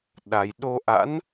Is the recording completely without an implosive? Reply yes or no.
no